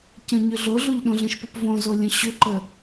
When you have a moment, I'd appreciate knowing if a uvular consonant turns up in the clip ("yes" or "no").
no